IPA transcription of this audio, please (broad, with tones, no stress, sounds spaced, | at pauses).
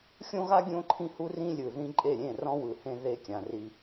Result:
xʲ õ˦ ɣ a˦ ɡʲ õ˦ ǃʰ ĩ˦ h u˦ r ĩ˦ lʲ ɯ˨ ð ĩ˦ ǃʼ e˦˨ ɾʲ ẽ˦˨ r ɔ̃˦ w ɯ˨ h ẽ˦ ð e˦ kʲ ã˨ r i˦